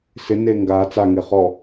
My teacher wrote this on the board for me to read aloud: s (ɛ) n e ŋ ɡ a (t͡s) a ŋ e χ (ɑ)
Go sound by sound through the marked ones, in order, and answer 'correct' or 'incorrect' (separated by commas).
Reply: incorrect, correct, incorrect